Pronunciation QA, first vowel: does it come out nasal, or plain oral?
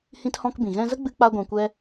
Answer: nasal